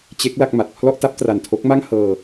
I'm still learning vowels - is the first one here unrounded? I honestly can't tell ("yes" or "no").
yes